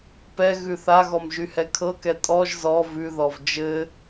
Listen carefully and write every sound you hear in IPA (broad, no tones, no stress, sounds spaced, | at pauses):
p ɛ ɣ ʉ θ a ɣ ɔ m ʒ y h ɛ kʰ ɤ k ɛ tʼ ɔ ʒ z ɔ v ʉ ð ɔ v d͡ʒ ɘ